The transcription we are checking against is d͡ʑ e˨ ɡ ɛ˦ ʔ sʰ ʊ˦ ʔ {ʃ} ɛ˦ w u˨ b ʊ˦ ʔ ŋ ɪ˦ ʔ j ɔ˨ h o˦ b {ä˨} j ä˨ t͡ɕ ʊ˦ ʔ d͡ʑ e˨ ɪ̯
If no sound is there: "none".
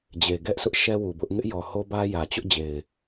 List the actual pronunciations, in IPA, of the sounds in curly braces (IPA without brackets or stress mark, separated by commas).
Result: ʃ, ä˦